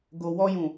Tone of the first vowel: low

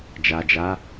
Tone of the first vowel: low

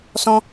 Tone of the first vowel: high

